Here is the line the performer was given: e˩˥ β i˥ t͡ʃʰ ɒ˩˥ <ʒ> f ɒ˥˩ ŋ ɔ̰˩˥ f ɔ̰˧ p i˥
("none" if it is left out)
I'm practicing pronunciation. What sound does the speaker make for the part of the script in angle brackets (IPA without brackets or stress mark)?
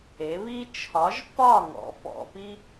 ʒ